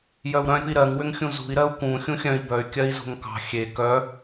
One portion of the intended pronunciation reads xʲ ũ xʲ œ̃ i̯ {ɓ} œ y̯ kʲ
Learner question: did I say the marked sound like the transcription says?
no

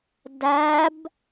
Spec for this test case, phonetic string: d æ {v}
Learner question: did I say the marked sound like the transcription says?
no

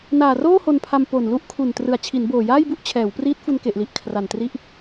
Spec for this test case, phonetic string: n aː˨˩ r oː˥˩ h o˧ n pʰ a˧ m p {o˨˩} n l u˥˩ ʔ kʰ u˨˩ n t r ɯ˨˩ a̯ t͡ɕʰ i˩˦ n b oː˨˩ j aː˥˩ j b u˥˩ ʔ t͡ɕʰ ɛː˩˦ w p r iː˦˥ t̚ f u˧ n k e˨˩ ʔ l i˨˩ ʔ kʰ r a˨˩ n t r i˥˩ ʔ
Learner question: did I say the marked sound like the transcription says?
yes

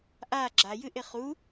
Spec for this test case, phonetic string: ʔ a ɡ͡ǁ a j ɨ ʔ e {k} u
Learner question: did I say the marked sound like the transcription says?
no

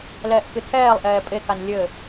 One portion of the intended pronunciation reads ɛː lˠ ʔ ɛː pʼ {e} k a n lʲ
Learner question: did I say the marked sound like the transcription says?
yes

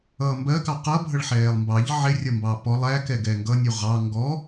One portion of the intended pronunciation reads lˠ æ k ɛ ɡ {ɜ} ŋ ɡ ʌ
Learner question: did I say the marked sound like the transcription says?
no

